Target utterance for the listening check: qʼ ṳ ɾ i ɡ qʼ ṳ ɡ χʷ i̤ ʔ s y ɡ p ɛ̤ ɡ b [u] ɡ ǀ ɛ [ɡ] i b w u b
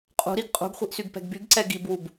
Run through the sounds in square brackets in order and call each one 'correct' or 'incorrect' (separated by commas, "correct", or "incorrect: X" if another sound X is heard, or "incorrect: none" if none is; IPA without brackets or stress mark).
incorrect: y, correct